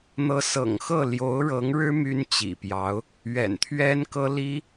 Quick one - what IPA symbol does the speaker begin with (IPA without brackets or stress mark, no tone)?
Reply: n̪